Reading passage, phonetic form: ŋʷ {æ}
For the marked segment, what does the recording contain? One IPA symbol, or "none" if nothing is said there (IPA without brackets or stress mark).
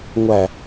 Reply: æ